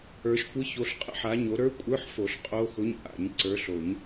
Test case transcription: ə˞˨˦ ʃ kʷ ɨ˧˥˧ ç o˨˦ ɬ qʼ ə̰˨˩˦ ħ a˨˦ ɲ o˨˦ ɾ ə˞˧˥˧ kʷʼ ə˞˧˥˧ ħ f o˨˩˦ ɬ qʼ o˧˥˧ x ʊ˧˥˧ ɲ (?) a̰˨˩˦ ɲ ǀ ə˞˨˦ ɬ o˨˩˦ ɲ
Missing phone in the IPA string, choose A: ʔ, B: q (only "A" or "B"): A